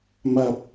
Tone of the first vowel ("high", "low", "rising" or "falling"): low